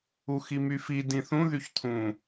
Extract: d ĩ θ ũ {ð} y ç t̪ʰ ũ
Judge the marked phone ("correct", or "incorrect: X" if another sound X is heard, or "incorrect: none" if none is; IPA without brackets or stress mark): correct